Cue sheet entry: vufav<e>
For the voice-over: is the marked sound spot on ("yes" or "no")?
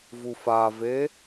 yes